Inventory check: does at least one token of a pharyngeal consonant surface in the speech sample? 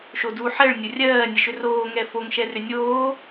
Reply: yes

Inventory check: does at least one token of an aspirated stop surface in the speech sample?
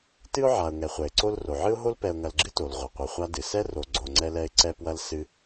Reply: no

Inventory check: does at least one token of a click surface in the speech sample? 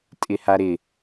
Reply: no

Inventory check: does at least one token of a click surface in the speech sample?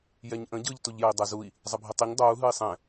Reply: no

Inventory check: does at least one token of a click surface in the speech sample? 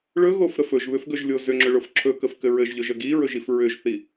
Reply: yes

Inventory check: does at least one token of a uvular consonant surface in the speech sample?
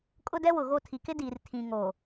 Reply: no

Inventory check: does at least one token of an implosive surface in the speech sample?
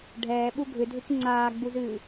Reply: yes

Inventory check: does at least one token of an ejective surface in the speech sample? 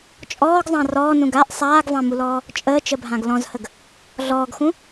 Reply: yes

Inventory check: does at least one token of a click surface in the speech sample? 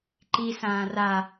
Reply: yes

